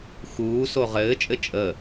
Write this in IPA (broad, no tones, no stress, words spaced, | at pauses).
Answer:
xuːso ʁɘːt͡ʃʼɘ t͡ʃʼə